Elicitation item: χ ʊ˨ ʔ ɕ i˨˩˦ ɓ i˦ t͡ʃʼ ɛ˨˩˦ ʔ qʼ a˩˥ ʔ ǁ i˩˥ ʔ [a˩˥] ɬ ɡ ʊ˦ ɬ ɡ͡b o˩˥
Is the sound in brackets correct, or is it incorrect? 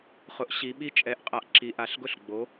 correct